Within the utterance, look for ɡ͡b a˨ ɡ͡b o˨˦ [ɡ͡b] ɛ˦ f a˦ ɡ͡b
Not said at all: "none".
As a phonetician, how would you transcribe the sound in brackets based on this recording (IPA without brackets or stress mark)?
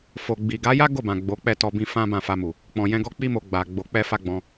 k͡p